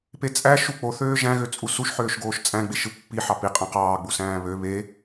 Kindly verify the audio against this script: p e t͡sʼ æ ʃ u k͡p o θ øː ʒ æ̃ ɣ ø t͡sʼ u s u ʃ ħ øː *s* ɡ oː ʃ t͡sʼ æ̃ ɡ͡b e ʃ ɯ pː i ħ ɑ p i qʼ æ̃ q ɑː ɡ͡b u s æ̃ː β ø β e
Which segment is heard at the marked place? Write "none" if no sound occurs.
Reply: ʃ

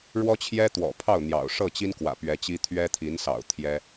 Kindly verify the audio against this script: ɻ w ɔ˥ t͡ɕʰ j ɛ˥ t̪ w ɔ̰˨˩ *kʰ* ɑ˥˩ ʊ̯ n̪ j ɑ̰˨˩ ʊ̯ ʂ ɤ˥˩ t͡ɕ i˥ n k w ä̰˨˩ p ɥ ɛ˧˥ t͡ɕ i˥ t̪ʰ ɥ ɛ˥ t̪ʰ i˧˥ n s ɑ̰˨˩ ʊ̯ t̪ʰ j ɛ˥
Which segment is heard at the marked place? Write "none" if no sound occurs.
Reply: pʰ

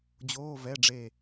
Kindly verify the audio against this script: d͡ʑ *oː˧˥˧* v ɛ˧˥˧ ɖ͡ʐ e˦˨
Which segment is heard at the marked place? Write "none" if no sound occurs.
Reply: oː˧˥˧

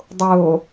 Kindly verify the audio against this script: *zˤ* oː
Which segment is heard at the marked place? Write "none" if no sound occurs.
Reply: dˤ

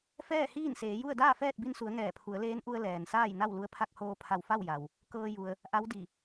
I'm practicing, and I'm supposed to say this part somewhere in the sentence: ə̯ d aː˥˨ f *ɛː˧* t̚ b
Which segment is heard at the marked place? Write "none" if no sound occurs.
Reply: ɛː˥˨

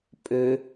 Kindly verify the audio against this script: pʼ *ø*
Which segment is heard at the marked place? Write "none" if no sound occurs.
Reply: ø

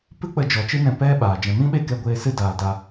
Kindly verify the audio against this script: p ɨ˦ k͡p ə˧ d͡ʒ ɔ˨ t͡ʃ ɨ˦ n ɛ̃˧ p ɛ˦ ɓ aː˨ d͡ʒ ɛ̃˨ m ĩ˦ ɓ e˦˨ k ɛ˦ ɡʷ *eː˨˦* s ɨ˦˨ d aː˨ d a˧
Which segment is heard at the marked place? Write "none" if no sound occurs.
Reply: eː˧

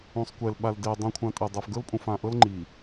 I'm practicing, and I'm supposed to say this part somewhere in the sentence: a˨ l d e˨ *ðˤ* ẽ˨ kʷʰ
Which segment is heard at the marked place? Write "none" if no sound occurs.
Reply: dˤ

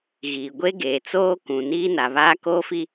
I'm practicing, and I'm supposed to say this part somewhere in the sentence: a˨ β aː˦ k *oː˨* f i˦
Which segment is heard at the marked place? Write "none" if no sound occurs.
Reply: oː˦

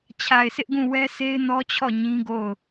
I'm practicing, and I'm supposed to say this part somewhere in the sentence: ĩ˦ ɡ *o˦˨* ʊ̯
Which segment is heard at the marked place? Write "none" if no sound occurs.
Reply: o˦˨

